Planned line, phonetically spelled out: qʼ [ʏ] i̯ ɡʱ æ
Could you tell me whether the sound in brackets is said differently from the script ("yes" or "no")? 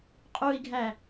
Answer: yes